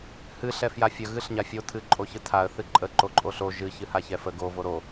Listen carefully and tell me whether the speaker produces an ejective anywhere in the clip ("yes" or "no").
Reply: yes